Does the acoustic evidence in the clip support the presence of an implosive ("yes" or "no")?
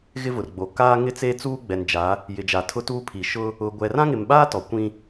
yes